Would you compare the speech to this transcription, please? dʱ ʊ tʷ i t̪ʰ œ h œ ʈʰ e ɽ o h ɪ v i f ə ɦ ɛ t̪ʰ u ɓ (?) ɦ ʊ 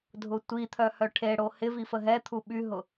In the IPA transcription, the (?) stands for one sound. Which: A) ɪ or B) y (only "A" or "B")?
B